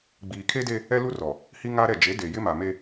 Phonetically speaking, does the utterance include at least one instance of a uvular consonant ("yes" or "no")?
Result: no